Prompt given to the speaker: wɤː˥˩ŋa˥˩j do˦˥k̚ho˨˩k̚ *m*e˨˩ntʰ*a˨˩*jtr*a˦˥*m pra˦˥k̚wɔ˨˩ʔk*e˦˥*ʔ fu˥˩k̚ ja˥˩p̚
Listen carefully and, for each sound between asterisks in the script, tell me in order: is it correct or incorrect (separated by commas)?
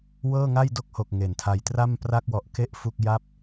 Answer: incorrect, incorrect, incorrect, correct